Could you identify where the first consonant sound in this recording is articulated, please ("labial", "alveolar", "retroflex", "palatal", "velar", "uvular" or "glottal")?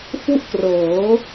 labial